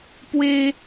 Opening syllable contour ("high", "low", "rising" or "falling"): high